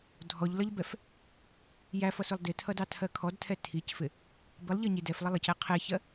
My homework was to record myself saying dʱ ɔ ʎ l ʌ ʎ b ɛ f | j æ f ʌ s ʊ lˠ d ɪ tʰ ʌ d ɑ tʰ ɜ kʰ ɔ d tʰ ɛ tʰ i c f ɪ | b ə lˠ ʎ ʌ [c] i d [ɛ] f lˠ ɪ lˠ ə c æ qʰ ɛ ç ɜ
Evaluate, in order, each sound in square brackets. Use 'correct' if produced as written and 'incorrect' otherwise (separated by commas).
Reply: incorrect, correct